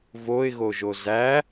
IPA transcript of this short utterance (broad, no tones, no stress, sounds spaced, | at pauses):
v o ɪ̯ ɣ o ʒ o z æ